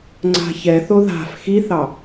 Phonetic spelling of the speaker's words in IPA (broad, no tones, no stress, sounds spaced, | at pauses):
ŋ͡ǀ a̤ ç ɛ θ o ð a̤ f x i θ ɑ